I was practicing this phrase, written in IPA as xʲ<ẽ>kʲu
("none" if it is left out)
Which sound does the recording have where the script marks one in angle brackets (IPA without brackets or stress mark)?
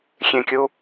ẽ